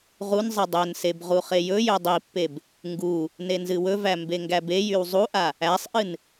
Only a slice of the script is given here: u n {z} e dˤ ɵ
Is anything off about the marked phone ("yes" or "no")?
yes